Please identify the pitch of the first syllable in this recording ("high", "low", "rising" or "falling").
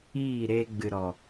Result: falling